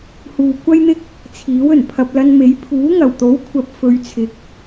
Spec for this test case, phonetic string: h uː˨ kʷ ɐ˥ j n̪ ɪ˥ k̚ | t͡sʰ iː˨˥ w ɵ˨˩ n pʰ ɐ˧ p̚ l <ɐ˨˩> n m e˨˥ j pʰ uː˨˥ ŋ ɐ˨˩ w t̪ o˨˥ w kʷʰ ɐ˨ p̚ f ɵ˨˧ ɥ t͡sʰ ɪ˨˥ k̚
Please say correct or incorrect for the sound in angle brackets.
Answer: incorrect